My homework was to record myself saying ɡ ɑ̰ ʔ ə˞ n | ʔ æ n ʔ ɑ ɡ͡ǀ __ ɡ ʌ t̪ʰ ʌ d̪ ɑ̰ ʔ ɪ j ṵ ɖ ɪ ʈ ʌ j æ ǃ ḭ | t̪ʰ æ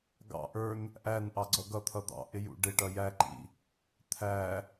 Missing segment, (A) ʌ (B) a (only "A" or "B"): A